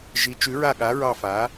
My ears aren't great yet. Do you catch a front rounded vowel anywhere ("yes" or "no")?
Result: no